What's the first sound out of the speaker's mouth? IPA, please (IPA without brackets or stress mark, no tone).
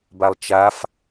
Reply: b